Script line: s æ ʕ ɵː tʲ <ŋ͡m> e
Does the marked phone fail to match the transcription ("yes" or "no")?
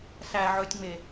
no